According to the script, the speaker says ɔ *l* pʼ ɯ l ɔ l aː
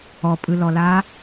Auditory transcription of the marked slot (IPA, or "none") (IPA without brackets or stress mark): none